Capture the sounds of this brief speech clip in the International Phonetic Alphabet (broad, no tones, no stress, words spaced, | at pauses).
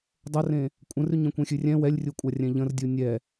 dˤərẽ | kʷʼə̃rʉɲ ə̃kʷẽxʲʉrʲɛ̃ wɛlʲrʲukʷʼa rʲɛ̃ʎə̃rdʲu nʲɛ